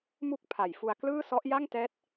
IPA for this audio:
mu˥˩k̚pʰa˨˩jfu˧a̯ klɯː˥˩sɔ˦˥ʔ ja˥˩ŋtɛː˦˥t̚

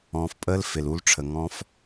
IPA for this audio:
ɔ̃ː˨fpʼəː˦l fɪ˨lu˦lʈ͡ʂʰə˨ ŋɔ̃˦f

